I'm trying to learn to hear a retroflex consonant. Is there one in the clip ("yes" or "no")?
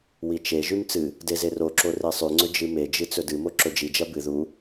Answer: no